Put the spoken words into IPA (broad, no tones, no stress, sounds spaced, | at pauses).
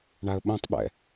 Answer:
ɳ a ə̯ ɓ õ tˤ ɓ ɛ̰